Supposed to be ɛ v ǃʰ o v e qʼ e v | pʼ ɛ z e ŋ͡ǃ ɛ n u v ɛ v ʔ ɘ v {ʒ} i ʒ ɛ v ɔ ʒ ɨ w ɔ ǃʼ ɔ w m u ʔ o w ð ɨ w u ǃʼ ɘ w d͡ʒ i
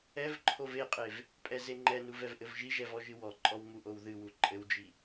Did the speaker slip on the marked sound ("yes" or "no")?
no